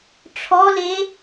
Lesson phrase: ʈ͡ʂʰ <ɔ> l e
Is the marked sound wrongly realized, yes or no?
no